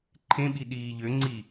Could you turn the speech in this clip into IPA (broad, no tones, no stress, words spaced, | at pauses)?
ǃʰẽɓi ɗiːʎøŋ͡ǀi